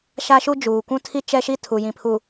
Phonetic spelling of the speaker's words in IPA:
ʃa˦ʃu˦ d͡ʒuː˨kʷũ˦tʰi˦ t͡ʃɛ˦ʃi˦tʰu˨ jĩ˨pʰu˨

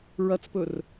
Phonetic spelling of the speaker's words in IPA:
ɹɐt͡spɵr

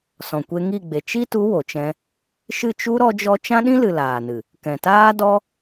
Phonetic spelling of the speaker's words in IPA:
sɔ̃˨kʷe˧ŋi˦˨ɡ͡be˨ t͡ʃi˦tu˨˦ wo˨t͡ʃɛ̃˧ | ʃɨ˦˨t͡ʃu˦ ɾɔ˦d͡ʒɔ˦ t͡ʃã˦ɗĩ˦lɨ˨ laː˨nɨ˨ | kɛ̃˨taː˦dɔ˦

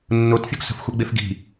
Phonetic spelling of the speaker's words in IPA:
nːotfʲɤɡ sə̤fxʷɛɡ͡bef ɡi̤

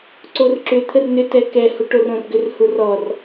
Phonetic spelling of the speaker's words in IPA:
ǀorǁʏ t̪ʰərnʏ tɛkɛ huʈorõrɡʏr hurɔr

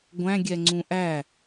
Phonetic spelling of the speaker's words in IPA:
ɡʷæ̃ɡʲɛŋ͡ǀũ ʔæ

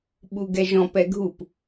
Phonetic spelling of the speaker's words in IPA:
ɓuɡɛʒɔ̃pɛ ɡʱup

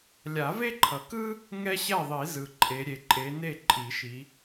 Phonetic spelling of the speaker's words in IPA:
lʲa˨˩˦ve˥ǃʰʌ˨kɯ˥ | ŋɛ˥ɕɛ˥˨ðˤi˨˩˦ zɯ˨ǃʼe˨˦ ɾʲe˨ǃʼe˨˦ne˥˨ ǃʼi˨˩˦ʃi˨˦

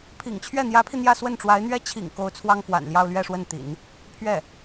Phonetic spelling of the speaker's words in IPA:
pʰḭ˨˩ŋt͡ɕʰɥɛ˥˩n̪jä˧˥pʰi˧ n̪jä˥˧swə˥˩nʈ͡ʂwa˧˥ɪ̯n̪ɥɛ˥ t͡ɕʰḭ˨˩ŋ ko˧˥ʊ̯ t͡sʰwɑ˥ŋfwa̰˨˩nljɑ˥˧ʊ̯ lɥɛ˥˧ʂwə˥˩nt̪ḭ˨˩˦n | pʰɥɛ˥˩

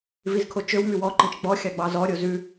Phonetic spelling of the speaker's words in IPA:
vizkʰot͡ʃøw mywɔ ǃĩt͡ʃɡ͡bɔ xʲɑɡ͡bɑzɔ ɾʲozʉ

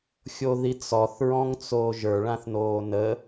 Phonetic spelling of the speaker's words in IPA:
xʲoðit͡sɔθ ɹɔ̃ŋt͡soːʒə˞ ɭãθnoːnə

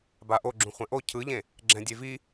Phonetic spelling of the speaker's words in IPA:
baʔo ɡ͡ǁũχʷɛ̃ʔo cʰɯʎẽ | ɡ͡ǁɛ̃dʲevi

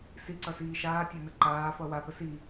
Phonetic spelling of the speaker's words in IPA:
siǀʌsiː ʃaːtʲanə ǃaːfʌ wapə si

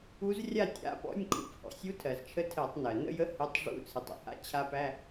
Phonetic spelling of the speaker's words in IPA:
u˧˥zrʲa˥˨tʲa̰˧˥˧pɔ̰˧˥˧nʲ kʰṵ˧˥phɔ̰˩sʲu˧˥ tʰɜ˩zt͡ʃʰə˧˥ tʰɜ˧˩˧tˤnɜ˩ nə̰˥˨jə˧˥ hɪ˧˥˧tˤ ʐṵ˧˥˧t͡sʰɨ˩tˤ ə̰˥˨ha̰˧˥˧ t͡ɕʰa˧˥pæ˧˥˧

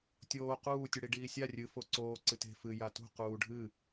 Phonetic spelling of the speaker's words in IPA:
tʲoː quː tʲuɽiɖiːsʲa rʲɨ foǀoː ǀɨte̤ fɨ jatṳ quːɖʱɨ

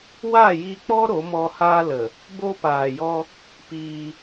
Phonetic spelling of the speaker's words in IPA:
wa˦˨ji˧k͡pɔ˦ ɾo˨˦mɔ˧ haː˧lə˨ | bo˧paː˨jɔ˧ | piː˧

